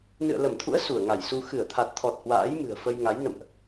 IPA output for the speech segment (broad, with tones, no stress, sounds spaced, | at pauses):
n ɨ̰˧˨ ə̯ l ə˧˩ m t̪ʰ ṵ˧˥ ə̯ s u˧˩ ə̯ ŋ a˧˩ j s u˧ x ɨ˧˩ ə̯ t̪ʰ a˨˩ t̚ t̪ʰ ɔ˨˩ t̚ h w a̰ː˧˥ j m ɨ̤˨˩ ə̯ f ə˧ j ŋ a˨˦ j n ə̰˧˨ m ʔ